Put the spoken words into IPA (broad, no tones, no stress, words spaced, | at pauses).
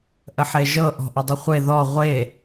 ʔəħeʒɤ ʔɔ̤ʔədˤɘχʷe ðɔ ʁʷe